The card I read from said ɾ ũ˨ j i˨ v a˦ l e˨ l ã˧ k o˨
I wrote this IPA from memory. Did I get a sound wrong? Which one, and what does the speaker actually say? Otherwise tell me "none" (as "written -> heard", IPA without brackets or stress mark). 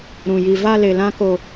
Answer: none